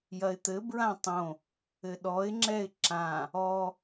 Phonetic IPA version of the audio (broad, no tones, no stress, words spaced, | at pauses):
jɐɪ̯t̪ɘ bɹãtˤõ | ɘɗɔɪ̯ŋ͡ǁɛɪ̯ ǁã | ɔ